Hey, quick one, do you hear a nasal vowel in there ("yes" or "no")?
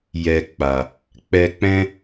yes